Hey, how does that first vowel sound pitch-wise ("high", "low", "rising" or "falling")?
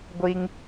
high